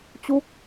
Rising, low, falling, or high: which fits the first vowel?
falling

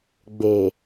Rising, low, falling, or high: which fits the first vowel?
low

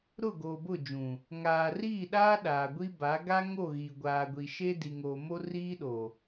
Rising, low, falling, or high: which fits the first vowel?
falling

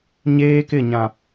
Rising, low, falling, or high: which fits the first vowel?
high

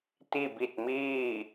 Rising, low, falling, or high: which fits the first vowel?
falling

